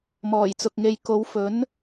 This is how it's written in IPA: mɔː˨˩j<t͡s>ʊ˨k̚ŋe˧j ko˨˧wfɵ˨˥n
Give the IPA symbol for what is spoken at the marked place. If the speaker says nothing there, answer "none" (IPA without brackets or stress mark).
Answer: t͡s